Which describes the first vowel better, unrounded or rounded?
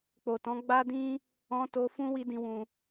rounded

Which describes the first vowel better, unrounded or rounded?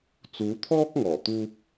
rounded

